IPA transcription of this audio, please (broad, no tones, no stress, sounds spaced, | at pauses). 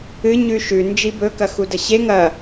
ɨ ɲ ʉ ʃ ʉ n d͡ʒ i b ɵ k ɐ x u d ɐ ɕ e ŋ ɐ